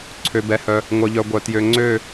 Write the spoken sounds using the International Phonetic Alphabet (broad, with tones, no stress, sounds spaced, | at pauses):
ǀʰ ø˩ b ɛ˩ h œ˩ | ŋʷ œ˩ ʎ œ˩ ɡʷ œ˩ t j ø˩ ŋ͡ǀ ø˥˨